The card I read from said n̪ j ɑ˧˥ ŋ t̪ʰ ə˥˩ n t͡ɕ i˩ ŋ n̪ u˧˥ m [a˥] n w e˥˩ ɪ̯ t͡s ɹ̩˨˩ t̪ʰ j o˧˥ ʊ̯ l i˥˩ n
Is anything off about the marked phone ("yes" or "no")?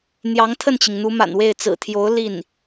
yes